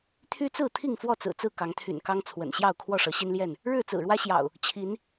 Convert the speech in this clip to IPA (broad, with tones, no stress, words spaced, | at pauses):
t̪ʰy˦t͡sɹ̩˥˨ t̪ʰi˥˨ŋfwɔ˥˨t͡sɹ̩˨˩ t͡sɹ̩˥˨kɑ˨˦ŋt̪ʰy̰˨˩n kɑ˦ŋt͡sʰwə̰˨˩nɕjɑ˥˨ʊ̯ kʰwɔ˥˨ʂɤ˨˦ɕi˦nljɛ˥˨n | ɻɻ̩˥˨t͡sɹ̩˨˩ɻwä˦ɕjɑ̰˨˩ʊ̯ | t͡ɕʰi˨˦n